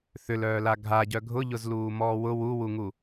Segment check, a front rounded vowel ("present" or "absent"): present